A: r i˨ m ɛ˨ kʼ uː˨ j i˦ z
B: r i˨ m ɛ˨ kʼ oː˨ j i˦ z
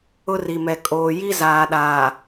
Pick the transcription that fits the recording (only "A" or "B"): B